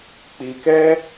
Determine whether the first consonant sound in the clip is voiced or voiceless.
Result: voiceless